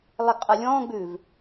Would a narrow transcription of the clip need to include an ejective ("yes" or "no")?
yes